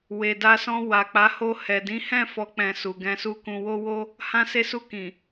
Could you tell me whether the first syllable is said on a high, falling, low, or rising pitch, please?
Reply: low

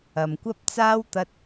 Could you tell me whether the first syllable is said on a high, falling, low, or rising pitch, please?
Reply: low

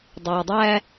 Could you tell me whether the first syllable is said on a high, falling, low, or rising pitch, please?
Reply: low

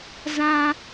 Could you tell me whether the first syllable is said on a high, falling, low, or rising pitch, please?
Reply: high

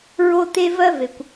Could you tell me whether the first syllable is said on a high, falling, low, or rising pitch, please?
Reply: high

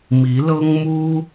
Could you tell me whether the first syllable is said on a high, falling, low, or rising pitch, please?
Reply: rising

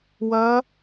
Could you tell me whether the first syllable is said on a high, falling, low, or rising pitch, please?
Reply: rising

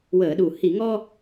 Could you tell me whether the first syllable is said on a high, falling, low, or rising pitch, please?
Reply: low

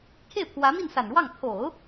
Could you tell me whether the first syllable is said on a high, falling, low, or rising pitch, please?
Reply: falling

